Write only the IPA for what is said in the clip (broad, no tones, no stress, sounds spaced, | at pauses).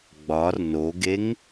ɡ͡b ɒ r n o ɡ e ŋ